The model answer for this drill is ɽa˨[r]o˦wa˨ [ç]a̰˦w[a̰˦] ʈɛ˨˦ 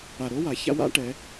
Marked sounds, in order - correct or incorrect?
incorrect, correct, correct

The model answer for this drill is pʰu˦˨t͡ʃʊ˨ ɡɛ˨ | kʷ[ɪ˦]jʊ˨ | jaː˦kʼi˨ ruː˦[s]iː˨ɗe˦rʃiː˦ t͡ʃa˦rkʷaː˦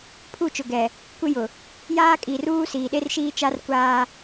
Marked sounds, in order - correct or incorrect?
correct, correct

